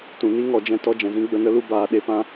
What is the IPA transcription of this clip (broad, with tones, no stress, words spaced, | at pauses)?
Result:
tũ˨ni˦ ŋɔ˦˨d͡ʒɛ̃˦tɔ˦ d͡ʒɛ̃˨zĩ˦ ɡ͡bə˦˨nə˦lu˦ baː˧ ɗe˦pã˦